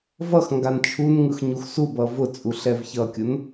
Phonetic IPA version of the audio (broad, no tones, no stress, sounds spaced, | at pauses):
v ʌ x ŋ ɡ a n t͡ʃʰ u n ŋ ɯ x ɲ u x s u b ʌ v ʊ t͡sʼ u ɬ ɛ v ç ʌ kʲ ʊ n